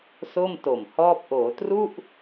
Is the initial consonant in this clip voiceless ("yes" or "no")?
yes